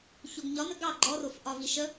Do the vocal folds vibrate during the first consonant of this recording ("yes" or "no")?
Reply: no